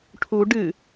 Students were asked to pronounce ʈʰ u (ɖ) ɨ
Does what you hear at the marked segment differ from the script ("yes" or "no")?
no